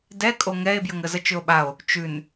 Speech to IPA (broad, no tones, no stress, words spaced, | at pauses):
dɛkʼo ŋɛe̯bjəŋə zət͡ʃʏo̯ɓao̯ | t͡ʃʉn